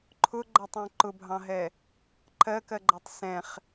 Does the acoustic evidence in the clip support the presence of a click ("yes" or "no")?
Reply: yes